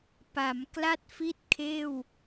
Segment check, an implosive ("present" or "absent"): absent